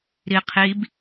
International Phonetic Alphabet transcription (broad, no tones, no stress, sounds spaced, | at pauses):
ɾ i qʰ i b